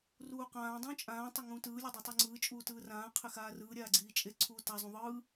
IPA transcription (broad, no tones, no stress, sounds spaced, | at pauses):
r uː q ãː dˤ ũː t͡ʃʼ ãː tˤ ʌ ŋ ũː t ɯː lʲ ʌ dˤ a tˤ i ŋ͡ǀ ɯː t͡ʃʼ uː t ɯː r ãː qʰ e x aː r ɯː ɾʲ aː ɡ͡ǀ iː t͡ʃʼ e ǀʰ uː t a zˤ ũ ðˤ ɯː